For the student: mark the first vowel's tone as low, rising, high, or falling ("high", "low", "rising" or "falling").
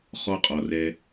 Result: high